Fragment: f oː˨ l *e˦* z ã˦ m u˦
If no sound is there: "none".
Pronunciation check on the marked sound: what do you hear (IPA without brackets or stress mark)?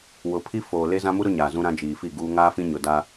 e˦